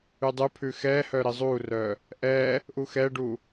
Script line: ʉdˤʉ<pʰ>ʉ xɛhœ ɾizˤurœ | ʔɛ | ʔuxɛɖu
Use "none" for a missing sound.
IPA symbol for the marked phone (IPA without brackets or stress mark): pʰ